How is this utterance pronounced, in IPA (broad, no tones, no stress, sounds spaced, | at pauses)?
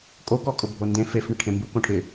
kʼ o k ɔ kʼ ʊ bʱ o n d ẽ f e f ɳ ɪ ʈʰ ẽ m b u k õ ʈʰ ɪ